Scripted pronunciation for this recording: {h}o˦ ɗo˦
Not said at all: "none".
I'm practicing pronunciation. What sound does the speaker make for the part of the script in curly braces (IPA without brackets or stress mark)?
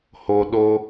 h